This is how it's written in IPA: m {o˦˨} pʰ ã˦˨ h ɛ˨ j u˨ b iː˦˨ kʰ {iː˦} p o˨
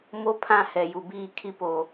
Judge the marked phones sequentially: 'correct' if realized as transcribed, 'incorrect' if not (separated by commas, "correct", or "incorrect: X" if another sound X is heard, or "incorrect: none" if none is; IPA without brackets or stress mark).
incorrect: o˦, incorrect: i˦